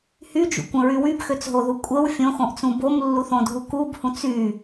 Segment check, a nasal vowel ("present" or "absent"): present